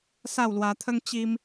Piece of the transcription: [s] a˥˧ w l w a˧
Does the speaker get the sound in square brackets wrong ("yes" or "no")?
no